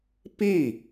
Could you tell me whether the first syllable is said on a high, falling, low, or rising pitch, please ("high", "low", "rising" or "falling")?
falling